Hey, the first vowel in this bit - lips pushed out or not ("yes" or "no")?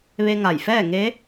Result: no